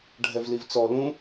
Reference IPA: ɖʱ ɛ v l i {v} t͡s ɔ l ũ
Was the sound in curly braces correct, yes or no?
yes